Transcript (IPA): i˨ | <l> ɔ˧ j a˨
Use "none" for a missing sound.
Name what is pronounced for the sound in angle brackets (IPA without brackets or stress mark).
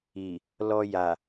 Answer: l